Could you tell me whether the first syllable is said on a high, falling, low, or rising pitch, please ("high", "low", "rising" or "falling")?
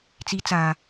rising